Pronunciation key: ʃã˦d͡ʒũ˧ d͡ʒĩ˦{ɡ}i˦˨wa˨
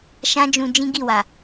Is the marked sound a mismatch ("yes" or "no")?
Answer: no